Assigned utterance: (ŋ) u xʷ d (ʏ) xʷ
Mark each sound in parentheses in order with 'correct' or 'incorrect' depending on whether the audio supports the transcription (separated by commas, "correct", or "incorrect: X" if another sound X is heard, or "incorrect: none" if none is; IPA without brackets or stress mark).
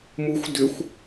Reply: incorrect: m, correct